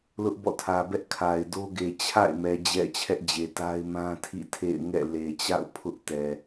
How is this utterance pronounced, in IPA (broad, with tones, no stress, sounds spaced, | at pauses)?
l ʊ˦ ʔ b ɔ̰˦˨ tʰ ä˨ b ɛ˦ ʔ kʰ a˨ ɪ̯ d o˦ ɡ e˨ t͡ɕʰ a̰˦˨ ɪ̯ m ɛ˨ d͡ʑ ɛ̰˦˨ t͡ɕʰ ɛ˦ ʔ d͡ʑ e˨ t a˦ ɪ̯ m ã˦ tʰ ḭ˦˨ tʰ ḛ˦˨ ɪ̯ ŋ ɛ̰˦˨ l e˨ t͡ɕ a̰˦˨ ʊ̯ pʰ ʊ˦ ʔ t ɛ˨